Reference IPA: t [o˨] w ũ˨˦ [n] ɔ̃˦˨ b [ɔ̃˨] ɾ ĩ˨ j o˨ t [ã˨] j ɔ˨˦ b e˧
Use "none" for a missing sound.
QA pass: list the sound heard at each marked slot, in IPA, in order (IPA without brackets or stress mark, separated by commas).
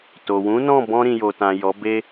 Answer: o˨, n, ɔ̃˧, ã˨